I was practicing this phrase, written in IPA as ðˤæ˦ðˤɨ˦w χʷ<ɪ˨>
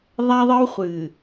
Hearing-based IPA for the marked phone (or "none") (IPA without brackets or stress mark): ɨ˨